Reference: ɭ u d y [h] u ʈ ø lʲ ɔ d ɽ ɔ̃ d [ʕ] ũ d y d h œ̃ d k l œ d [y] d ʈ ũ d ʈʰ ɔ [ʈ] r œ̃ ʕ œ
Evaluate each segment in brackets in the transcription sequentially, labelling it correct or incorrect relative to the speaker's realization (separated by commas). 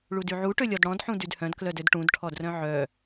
incorrect, incorrect, incorrect, incorrect